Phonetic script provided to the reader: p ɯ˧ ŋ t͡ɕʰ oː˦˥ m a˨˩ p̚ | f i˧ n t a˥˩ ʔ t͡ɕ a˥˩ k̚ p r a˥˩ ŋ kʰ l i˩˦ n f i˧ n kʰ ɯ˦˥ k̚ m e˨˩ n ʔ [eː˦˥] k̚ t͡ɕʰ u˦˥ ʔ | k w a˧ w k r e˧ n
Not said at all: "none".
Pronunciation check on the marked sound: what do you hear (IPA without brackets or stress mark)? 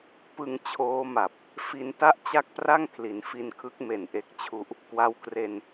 e˦˥